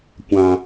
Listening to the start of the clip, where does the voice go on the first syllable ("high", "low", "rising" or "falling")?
low